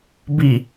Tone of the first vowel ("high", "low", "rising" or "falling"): low